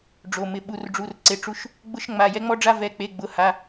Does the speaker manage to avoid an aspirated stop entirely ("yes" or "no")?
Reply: yes